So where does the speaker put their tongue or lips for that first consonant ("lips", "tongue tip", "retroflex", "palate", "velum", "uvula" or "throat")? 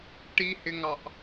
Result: retroflex